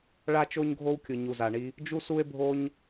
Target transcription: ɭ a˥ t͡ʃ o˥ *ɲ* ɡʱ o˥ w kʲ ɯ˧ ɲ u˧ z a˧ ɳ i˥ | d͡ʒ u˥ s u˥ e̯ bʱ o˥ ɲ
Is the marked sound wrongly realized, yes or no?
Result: no